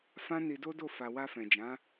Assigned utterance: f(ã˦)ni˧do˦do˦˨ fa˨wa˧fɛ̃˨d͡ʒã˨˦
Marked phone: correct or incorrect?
correct